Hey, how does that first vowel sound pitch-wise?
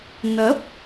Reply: rising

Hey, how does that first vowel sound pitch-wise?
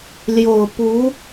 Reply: low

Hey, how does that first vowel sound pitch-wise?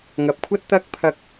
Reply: low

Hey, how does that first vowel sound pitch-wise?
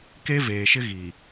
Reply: high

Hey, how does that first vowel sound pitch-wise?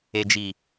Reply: low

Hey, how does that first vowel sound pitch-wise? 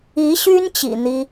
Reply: rising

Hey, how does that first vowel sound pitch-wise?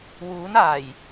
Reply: rising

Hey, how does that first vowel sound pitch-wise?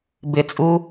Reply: low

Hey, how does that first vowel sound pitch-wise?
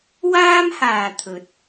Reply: high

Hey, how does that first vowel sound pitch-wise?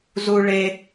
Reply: high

